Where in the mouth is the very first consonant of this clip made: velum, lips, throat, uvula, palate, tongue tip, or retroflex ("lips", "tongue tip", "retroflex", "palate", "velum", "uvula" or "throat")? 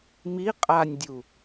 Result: lips